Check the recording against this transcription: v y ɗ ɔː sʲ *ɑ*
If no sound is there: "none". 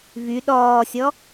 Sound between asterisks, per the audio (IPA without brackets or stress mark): ɔ